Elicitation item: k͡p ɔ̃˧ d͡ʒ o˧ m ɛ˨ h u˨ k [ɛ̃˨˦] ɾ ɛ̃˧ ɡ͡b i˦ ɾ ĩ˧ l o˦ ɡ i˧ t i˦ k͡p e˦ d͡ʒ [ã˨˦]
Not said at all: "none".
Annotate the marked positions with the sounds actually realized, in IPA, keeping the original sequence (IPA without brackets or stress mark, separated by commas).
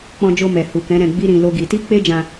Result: ɛ̃˨˦, ã˧